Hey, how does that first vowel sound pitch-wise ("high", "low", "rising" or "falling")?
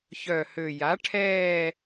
low